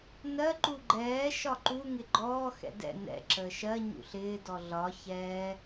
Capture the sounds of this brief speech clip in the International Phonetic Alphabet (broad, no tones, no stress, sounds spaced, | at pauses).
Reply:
n ɜ ǃ u ɡ͡ǃ ɛː ʃ ɒ ǃ u ŋ ɪ ɡ͡ǃ ɔː x ɛ̰ d ɛ̰ n ɛ̰ ǁ əː ʃ ɜ ɲ ṵ ɬ ɪː d ɔ ɮ ɒ ç ɛː